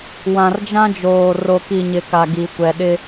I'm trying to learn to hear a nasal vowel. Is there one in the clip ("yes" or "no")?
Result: yes